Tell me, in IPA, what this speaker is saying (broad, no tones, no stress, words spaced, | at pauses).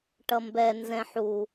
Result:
ʈʌmbɛ nzɛ̃ħu